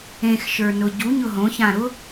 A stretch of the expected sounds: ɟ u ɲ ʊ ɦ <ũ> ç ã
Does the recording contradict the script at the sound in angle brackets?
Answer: yes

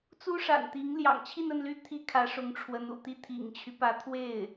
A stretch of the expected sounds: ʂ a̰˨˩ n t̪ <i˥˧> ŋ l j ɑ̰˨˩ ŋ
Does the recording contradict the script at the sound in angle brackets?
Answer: yes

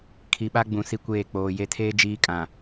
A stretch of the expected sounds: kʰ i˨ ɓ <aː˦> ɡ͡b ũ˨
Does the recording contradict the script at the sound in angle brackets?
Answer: yes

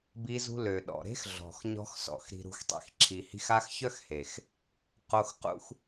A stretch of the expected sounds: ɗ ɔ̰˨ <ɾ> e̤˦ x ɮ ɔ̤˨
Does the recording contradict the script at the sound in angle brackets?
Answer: no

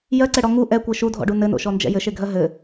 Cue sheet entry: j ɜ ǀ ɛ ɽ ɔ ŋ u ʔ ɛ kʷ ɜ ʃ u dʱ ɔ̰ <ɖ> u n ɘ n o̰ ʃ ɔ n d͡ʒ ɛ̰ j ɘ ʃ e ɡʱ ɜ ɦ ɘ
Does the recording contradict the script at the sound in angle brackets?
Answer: no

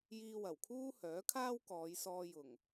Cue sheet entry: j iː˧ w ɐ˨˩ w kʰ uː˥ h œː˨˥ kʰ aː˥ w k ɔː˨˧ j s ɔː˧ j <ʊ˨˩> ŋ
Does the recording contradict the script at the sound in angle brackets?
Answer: no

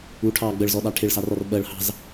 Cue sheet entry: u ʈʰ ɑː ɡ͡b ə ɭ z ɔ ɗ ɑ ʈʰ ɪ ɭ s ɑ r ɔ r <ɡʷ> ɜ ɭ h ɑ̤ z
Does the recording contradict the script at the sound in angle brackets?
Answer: yes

